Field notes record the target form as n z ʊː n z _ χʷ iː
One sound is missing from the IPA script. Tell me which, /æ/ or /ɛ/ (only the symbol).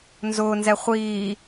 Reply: ɛ